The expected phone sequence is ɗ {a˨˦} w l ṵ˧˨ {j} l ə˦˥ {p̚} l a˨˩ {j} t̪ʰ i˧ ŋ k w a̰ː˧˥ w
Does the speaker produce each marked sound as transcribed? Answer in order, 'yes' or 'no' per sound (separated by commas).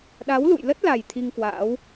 yes, yes, no, yes